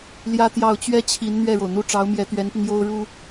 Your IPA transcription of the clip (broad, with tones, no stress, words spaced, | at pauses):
ljä˥t̪jɑ˥˩ʊ̯ t͡ɕɥɛ˥t͡ɕʰi˧˥n n̪ɥɛ˥˩ɻo˩ʊ̯n̪u˥˩ ʈ͡ʂɑ˧˥ʊ̯mjɛ˧˥t̪ɥɛ˧˥npi˧ŋ jo˥ʊ̯ ɻu˥